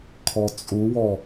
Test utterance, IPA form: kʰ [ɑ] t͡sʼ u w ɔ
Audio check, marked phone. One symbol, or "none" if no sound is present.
ɔ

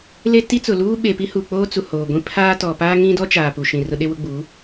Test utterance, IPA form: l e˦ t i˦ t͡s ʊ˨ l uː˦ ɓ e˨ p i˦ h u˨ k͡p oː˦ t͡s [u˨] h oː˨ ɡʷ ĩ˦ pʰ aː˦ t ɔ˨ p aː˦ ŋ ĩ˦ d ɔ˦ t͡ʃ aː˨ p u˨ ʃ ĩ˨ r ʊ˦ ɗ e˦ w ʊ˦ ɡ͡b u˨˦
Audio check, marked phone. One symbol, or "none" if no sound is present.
u˨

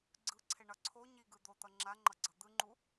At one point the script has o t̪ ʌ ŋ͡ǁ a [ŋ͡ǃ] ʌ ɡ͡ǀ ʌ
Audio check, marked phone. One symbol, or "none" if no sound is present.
ŋ͡ǃ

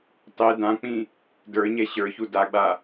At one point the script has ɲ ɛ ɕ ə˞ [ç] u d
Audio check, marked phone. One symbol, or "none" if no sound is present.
ç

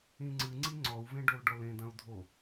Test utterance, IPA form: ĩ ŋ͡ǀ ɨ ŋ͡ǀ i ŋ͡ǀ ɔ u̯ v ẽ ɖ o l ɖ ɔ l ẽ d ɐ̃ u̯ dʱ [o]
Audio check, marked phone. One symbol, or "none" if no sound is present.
o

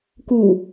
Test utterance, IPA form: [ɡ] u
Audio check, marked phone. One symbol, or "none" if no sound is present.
k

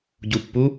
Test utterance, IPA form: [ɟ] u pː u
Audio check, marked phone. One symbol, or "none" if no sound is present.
ɟ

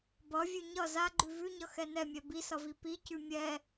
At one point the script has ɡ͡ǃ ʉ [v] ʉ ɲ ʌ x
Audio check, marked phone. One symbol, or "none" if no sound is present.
v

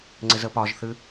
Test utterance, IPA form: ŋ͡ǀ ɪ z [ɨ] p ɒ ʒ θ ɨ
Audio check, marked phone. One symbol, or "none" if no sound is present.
ə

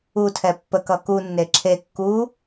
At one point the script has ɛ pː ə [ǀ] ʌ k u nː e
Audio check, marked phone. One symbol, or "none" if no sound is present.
k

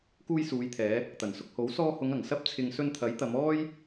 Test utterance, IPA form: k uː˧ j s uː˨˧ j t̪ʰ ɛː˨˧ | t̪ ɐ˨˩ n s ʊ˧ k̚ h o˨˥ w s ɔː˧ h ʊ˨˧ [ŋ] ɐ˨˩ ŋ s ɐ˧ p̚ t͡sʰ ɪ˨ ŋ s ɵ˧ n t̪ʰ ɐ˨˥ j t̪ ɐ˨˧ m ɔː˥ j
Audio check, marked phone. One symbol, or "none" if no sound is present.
ŋ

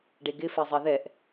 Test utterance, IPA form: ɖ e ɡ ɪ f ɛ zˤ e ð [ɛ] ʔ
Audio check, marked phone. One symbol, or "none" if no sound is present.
ɛ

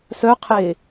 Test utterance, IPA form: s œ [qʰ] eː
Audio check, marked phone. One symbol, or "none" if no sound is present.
qʰ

